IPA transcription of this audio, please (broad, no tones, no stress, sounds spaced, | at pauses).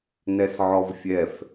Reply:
n ɛ s ʕ ɔ v fʲ ɛ f